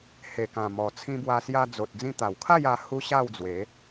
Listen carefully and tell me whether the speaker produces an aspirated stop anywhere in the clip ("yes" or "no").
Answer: yes